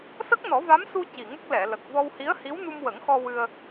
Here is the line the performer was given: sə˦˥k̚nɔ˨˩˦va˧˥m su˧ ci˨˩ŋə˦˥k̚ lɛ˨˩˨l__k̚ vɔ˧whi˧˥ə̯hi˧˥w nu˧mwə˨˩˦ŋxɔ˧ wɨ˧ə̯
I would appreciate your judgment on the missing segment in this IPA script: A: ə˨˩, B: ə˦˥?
A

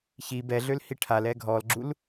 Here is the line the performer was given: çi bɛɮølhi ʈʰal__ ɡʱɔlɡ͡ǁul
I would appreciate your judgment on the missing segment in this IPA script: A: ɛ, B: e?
A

